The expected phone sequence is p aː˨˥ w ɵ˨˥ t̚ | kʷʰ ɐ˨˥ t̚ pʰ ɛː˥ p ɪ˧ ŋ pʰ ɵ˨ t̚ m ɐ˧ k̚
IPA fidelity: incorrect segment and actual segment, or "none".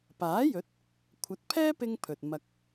w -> j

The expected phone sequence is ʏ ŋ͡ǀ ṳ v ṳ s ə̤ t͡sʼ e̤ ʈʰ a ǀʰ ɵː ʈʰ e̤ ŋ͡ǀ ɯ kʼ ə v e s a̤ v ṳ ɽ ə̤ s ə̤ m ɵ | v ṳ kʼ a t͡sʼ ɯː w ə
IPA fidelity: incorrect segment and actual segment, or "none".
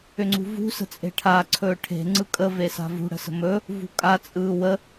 none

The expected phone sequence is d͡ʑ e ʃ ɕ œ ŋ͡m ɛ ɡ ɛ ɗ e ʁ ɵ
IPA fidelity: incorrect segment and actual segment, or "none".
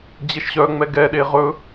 none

